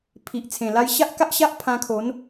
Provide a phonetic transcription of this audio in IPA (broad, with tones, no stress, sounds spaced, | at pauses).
pʰ i˨ ʔ t͡sʰ ẽ˨˩ l a˧ j ɕ a˦ ʔ k a˦ ʔ ɕ a˦ ʔ pʰ ã˧ kʰ o˨˦ n